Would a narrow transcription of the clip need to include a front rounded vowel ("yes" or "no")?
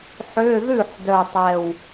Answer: yes